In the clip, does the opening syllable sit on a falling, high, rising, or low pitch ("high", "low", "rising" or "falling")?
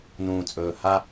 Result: low